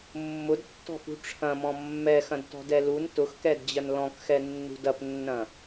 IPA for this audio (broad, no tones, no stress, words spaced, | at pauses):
mːʊdtːɔ̤fṳ ʈ͡ʂʰɐ̃mɔ̃ mːɛxɐ̃dtɔ̤dɛ lun tʊxkɛdd͡ʑɐn lɔ̃kxɛnːṳ dɐpnːɐ̃